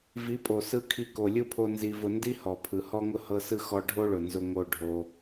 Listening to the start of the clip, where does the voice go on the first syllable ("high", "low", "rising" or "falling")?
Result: rising